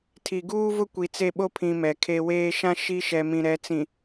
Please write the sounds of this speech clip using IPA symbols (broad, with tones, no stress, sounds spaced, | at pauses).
tʰ i˨ ɡ uː˦ v ʊ˦ kʷ i˨ t͡s e˦˨ ɓ o˦ pʰ ĩ˨ m ɛ˨ kʰ e˦ w eː˦ ʃ ã˦ ʃ i˦ ʃ ɛ˨ m ĩ˨ ɾ ɛ˨˦ t͡s ĩ˨